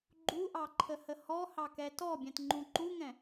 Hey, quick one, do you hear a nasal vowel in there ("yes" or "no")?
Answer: yes